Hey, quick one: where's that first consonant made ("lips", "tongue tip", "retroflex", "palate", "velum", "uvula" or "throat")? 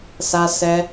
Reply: tongue tip